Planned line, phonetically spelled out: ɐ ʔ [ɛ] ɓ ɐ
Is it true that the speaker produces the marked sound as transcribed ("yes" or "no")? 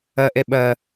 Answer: yes